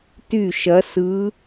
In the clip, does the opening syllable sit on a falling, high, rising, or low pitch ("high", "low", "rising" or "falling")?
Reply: falling